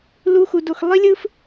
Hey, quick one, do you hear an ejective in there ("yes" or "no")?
no